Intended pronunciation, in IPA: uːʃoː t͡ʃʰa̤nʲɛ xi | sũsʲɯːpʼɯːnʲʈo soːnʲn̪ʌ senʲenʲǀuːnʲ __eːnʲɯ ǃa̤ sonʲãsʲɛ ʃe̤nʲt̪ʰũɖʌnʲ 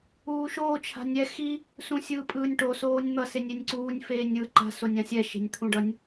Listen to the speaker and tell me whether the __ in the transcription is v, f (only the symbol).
f